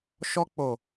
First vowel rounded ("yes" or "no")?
yes